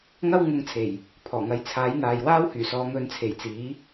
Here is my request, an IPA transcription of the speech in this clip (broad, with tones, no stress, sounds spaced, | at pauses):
ŋ ɐ˥ w ŋ ʊ˧ ŋ t͡sʰ e˨˩ j | pʰ ɔː˨˩ ŋ ɐ˨˥ j t͡sʰ aː˨˥ j n̪ aː˨ j w aː˥ w h yː˨˩ s ɔː˨˧ ŋ ɵ˨˧ n t͡sʰ e˨˩ j t͡s iː˨˥